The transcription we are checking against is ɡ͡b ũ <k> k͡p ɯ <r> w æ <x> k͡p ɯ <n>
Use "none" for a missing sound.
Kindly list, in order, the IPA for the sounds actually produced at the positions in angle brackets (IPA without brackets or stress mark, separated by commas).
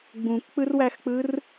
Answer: k, r, x, r